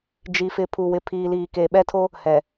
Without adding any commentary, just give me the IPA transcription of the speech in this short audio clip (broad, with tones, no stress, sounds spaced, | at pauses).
d͡ʒ i˨ f ɪ˨ pʰ u˨ w ɪ˨ pʰ iː˨ l iː˨ k e˨ ɓ ɛ˦ tʰ o˦ | h ɛ˨